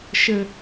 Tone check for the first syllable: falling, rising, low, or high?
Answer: low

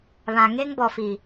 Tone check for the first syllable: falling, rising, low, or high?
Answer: low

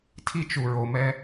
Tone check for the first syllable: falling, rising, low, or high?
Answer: high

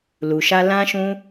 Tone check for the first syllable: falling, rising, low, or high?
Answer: low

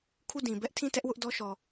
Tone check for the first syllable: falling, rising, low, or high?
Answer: falling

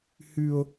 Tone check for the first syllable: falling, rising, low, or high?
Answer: high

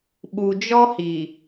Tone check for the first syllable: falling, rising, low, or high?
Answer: low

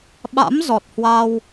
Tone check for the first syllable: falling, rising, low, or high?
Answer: rising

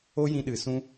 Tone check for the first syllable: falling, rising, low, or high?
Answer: high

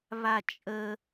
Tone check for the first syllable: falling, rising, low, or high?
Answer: high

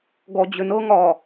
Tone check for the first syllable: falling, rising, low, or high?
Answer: low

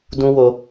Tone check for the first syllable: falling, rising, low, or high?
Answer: high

